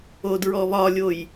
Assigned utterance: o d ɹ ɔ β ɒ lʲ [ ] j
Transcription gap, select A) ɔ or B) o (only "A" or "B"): B